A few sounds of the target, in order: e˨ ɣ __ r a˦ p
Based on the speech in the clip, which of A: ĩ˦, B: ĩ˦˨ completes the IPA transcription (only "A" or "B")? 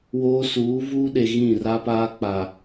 B